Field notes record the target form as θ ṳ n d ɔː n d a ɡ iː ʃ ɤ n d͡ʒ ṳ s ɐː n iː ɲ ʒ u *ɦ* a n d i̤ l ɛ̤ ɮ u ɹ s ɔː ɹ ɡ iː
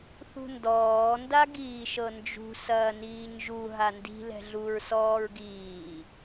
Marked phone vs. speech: correct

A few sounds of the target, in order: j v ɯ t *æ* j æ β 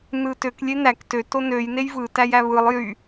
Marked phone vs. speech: correct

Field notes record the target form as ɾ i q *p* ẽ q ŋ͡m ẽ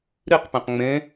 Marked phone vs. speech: correct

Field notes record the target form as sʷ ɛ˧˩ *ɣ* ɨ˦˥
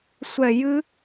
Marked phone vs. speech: incorrect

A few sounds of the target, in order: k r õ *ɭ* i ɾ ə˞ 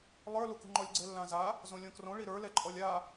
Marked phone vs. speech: correct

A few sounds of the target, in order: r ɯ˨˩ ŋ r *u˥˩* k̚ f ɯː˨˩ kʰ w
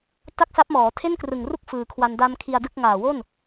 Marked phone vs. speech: correct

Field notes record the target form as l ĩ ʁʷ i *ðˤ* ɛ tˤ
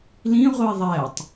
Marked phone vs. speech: correct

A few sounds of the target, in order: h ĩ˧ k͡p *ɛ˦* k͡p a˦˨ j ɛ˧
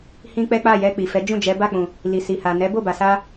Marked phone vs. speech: correct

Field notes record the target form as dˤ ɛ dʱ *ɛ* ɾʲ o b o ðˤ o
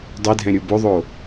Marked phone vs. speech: incorrect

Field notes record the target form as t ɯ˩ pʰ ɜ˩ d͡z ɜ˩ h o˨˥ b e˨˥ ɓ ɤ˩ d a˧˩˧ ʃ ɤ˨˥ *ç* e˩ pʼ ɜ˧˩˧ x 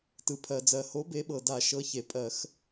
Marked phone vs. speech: correct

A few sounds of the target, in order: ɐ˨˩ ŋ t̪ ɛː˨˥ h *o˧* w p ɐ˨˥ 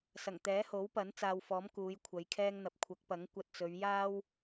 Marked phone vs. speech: incorrect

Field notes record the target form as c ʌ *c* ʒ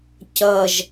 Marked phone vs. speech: incorrect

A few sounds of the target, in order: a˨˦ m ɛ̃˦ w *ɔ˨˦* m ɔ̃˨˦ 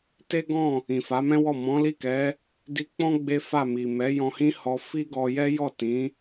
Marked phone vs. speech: incorrect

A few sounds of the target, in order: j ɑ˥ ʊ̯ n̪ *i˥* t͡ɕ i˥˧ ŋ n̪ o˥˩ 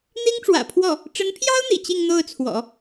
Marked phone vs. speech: incorrect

